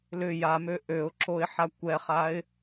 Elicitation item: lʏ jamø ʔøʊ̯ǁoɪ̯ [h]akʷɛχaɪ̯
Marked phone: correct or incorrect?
incorrect